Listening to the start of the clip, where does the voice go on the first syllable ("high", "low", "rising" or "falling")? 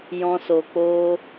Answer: high